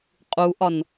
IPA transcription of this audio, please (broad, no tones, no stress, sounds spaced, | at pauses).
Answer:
qʼ u ʔ ɒ n